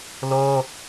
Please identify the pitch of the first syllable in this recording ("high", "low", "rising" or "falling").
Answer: high